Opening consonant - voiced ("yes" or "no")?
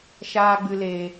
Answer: no